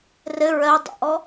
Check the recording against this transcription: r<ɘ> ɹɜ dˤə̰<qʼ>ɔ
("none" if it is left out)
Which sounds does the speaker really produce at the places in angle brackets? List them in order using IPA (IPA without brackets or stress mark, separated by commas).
ɘ, ʔ